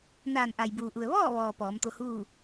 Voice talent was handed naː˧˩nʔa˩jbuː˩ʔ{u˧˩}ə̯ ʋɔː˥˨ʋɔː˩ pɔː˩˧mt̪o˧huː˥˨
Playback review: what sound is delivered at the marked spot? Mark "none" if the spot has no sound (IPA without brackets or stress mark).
u˩